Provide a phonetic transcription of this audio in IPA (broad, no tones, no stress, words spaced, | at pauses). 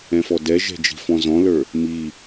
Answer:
ɛ̃fɔdɛʒɛ̤ d͡ʒi̤fɔ̃zɔ̃lə˞ | mi